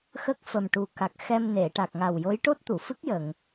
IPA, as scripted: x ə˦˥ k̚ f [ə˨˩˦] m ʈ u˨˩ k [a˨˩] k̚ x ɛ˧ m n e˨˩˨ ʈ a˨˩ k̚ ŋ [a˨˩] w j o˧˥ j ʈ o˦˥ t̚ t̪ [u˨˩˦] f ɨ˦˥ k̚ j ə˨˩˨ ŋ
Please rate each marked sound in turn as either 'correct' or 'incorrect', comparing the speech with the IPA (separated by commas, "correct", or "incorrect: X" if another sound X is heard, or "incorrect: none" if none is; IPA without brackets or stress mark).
incorrect: ə˨˩, correct, correct, incorrect: u˨˩˨